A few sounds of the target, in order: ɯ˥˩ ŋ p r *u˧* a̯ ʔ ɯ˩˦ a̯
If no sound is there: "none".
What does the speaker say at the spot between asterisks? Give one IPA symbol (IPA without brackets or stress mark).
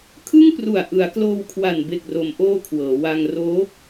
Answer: u˨˩